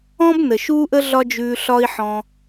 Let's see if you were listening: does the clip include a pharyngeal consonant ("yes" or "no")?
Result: yes